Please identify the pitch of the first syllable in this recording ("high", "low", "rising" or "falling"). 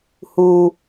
low